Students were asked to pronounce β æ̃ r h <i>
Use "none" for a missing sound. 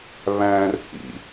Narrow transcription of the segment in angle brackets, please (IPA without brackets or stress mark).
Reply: ḭ